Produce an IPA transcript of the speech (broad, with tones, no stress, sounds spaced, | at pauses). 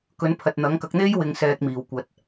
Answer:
k ɵ˨˥ n pʰ ɐ˨ t̚ n̪ ɐ˨˥ ŋ k ɐ˨˥ k̚ n̪ e˥ j w ɪ˨˧ ŋ s ɛː˨ k̚ m iː˨˩ w kʷ ɐ˨ t̚